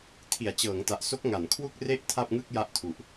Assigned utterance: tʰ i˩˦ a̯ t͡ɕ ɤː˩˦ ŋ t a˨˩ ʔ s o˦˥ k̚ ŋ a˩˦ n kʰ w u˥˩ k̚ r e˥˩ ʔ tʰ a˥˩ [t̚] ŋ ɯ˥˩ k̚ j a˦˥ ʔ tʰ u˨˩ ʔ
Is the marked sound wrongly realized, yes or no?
yes